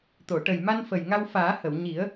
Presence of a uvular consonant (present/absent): absent